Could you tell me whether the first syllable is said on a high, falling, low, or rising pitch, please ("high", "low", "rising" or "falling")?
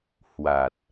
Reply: low